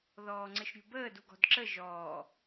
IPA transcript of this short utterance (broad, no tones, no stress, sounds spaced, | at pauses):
ð ɔː ŋ͡ǀ ɘ ʃ ɾʲ ṳ b əː d u ɡ ɔ̤ d ǁ ə ʒ ɔː